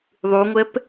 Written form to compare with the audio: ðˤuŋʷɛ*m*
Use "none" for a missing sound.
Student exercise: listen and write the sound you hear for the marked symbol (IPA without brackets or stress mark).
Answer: p